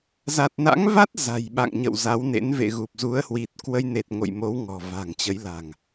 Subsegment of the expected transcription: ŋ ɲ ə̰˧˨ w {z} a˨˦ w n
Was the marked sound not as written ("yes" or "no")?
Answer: no